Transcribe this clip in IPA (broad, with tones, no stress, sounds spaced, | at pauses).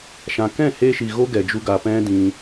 ʃ ã˨ k ɛ̃˦˨ h eː˧ ʃ i˨ ɣ o˦ ɡ ɛ˨ d͡ʒ u˧ ɡ a˨ p ɛ̃˦ d ĩ˧